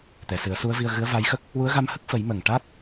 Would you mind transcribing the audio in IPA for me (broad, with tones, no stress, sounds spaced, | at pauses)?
t̪ ɛ˨˩˨ s ɨ˨˩˦ ə̯ s u˧˥ ə̯ v i˧ ə̯ ɣ ɨ˧˥ ə̯ v a˧˥ j x ə˦˥ k̚ | w u˧˥ ə̯ ɣ a˧ m h ə˦˥ k̚ f ə˨˩˦ j m ə˨˩ ŋ ʈ a˦˥ t̚